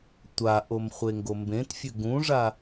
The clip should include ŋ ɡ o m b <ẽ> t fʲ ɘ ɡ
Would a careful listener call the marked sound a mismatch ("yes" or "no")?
no